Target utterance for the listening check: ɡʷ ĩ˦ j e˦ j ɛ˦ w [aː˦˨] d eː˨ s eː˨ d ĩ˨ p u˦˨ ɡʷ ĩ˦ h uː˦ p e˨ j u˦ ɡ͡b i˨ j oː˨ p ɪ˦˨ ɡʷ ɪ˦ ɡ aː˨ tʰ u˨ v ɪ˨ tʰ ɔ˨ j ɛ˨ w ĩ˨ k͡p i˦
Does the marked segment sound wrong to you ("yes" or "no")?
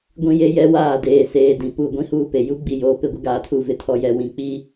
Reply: no